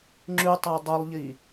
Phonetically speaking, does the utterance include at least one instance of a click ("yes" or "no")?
yes